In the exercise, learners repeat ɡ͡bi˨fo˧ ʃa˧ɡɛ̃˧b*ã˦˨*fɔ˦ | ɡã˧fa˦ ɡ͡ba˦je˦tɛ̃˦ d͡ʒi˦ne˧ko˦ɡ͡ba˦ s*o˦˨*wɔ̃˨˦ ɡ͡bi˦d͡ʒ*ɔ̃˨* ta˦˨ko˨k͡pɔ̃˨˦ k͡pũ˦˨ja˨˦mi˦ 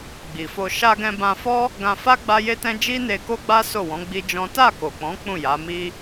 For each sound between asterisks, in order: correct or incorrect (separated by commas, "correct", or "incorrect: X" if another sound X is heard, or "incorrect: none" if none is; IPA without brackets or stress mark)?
incorrect: ã˧, correct, incorrect: ɔ̃˦